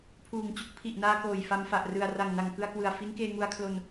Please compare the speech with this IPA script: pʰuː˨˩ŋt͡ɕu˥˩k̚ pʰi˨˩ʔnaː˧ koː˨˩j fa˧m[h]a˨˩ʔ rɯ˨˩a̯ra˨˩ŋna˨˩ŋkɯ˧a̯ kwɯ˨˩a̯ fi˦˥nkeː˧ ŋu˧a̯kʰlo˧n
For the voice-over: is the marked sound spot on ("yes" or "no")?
no